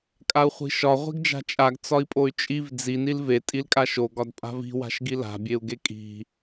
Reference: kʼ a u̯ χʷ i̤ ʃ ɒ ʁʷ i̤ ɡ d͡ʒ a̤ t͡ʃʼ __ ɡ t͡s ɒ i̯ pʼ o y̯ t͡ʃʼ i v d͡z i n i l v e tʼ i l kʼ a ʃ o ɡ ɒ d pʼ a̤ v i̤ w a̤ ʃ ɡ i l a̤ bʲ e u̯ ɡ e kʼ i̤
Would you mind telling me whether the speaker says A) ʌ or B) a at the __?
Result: B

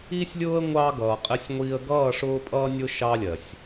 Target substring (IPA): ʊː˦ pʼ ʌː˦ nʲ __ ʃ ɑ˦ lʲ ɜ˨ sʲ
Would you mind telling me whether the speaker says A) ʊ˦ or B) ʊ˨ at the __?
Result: A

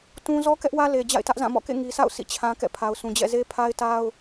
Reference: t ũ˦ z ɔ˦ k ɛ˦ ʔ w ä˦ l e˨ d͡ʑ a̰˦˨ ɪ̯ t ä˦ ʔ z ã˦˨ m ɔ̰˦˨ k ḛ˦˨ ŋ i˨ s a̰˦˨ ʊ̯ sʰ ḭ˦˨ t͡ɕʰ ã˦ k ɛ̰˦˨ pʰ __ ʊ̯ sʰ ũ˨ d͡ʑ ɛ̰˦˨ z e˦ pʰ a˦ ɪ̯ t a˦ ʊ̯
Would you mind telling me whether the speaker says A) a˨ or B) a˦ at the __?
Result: A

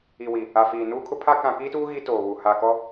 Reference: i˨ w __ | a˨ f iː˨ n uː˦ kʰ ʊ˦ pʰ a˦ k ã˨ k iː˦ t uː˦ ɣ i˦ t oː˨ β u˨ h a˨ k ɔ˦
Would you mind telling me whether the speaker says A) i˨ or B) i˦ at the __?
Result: A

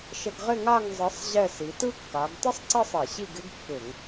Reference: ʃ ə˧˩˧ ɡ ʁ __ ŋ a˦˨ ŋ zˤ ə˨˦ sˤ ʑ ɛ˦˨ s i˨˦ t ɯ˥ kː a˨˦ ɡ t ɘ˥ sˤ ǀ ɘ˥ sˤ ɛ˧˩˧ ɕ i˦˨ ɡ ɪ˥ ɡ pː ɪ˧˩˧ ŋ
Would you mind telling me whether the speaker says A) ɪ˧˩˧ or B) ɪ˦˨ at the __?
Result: B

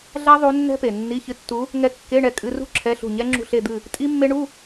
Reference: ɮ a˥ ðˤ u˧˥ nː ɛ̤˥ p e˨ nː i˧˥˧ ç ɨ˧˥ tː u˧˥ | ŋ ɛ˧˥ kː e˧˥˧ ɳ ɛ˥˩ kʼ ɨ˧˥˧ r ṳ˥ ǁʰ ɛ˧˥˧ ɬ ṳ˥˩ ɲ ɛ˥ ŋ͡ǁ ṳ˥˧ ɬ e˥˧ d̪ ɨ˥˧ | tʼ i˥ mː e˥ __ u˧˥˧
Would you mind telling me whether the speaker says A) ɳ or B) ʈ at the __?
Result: A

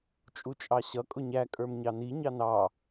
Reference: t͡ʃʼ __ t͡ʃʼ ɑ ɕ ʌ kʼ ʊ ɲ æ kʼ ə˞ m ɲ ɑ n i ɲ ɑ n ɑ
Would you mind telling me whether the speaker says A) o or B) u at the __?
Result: B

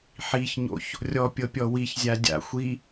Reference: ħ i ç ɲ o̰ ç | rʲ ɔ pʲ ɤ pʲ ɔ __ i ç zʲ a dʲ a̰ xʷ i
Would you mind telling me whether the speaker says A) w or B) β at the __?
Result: A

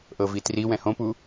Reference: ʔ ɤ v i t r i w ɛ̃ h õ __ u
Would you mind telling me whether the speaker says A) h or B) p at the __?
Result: B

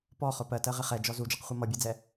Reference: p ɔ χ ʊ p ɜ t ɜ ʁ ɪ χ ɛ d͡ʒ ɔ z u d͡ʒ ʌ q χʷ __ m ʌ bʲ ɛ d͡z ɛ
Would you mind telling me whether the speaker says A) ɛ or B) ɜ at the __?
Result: B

